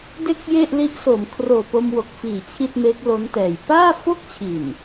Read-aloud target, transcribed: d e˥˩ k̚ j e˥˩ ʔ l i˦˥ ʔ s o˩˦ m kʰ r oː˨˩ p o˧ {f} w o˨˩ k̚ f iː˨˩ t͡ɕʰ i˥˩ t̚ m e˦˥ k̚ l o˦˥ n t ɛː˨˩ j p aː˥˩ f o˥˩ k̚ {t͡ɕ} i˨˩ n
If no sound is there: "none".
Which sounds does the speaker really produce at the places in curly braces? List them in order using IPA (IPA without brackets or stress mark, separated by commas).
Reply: m, t͡ɕʰ